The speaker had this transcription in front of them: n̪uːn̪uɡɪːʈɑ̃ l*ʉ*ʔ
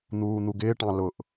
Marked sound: incorrect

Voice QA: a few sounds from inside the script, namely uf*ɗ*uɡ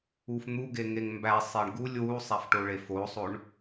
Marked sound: incorrect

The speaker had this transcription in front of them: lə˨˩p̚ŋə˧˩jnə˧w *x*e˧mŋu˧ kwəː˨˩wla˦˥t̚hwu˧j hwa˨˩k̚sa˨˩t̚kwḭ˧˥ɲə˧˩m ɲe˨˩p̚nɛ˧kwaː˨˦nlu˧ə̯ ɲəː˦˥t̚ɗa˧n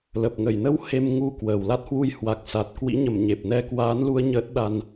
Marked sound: incorrect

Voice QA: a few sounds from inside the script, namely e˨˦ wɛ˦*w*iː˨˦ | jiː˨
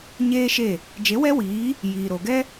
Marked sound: correct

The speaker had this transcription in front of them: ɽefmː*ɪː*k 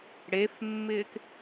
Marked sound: correct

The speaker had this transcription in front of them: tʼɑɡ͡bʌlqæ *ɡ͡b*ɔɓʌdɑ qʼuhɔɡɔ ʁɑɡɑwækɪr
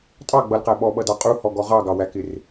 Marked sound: incorrect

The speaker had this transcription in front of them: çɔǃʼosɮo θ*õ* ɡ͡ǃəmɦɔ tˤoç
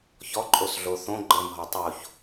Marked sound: correct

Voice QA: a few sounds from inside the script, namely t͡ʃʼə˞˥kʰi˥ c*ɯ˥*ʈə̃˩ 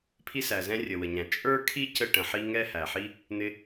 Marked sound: incorrect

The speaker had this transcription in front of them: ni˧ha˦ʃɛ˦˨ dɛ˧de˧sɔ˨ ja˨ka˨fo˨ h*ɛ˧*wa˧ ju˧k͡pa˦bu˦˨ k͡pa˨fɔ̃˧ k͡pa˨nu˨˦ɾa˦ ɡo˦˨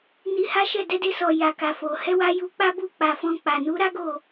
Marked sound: correct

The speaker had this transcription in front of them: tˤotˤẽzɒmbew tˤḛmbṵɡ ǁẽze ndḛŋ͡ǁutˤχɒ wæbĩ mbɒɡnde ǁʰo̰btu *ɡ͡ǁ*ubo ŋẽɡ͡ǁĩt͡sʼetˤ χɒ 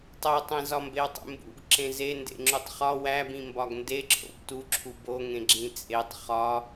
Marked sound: incorrect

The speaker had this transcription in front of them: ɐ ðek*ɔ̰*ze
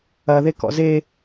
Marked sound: correct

